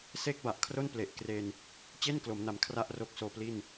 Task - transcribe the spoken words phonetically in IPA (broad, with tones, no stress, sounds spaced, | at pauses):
s e˥˩ k̚ b a˨˩ ʔ kʰ r o˥˩ n p l e˨˩ ʔ k r e˧ n | t͡ɕ e˥˩ n k l o˩˦ m n a˩˦ m kʰ r a˥˩ ʔ r o˦˥ k̚ s oː˧ p l i˥˩ n